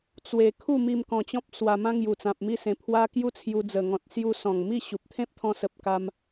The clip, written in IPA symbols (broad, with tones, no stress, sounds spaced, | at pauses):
t͡s w e˧ kʰ u˥˧ m i˧ m k ɔ̃˧ t͡ɕ ɔ̃˦ p̚ s w a˧ m ã˦ ŋ j u˨˩ t͡s ã˨ p̚ m i˥˧ s ẽ˧ pʰ w a˦ k j u˦ t͡sʰ j u˧ d͡z ə˨˩ ŋ ɔ̃˨ t̚ s j u˧ s ɔ̃˨˩ ŋ m i˥˧ ɕ u˨ p̚ t̪ʰ ẽ˦ p̚ t̪ʰ ɔ̃˧ s ə˨ p̚ k a˧ m